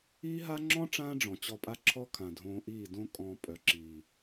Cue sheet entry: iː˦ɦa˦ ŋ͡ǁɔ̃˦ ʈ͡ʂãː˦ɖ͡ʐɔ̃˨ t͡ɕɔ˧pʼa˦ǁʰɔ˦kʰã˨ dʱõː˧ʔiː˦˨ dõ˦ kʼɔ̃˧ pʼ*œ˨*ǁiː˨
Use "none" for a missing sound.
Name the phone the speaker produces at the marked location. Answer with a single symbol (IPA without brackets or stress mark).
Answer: œ˨